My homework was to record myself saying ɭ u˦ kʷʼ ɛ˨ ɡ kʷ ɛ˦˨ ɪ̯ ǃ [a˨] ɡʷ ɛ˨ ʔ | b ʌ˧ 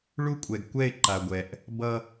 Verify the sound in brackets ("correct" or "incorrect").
correct